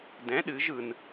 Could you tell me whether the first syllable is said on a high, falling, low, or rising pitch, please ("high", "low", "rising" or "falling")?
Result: rising